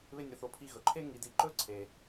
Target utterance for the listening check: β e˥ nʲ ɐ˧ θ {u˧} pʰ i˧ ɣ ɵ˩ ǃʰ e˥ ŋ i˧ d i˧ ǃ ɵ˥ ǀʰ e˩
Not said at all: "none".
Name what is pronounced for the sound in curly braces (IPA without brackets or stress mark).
o˧